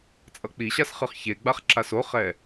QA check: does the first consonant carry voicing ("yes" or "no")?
no